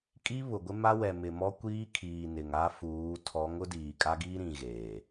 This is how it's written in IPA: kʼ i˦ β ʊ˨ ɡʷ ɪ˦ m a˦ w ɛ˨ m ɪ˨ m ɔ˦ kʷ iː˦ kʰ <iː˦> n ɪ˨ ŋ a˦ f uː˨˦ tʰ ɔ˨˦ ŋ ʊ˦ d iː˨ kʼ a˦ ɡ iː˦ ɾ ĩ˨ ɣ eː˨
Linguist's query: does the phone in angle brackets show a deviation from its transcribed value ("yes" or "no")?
yes